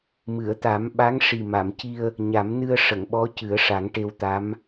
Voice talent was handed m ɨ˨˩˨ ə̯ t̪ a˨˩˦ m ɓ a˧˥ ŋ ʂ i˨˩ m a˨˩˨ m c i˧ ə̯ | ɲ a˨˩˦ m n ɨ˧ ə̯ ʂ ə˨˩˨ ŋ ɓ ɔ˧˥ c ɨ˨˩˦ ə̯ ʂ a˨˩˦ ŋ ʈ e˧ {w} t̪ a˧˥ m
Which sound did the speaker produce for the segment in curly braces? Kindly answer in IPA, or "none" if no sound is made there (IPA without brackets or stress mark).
w